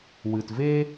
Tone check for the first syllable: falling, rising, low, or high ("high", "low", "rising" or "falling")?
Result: low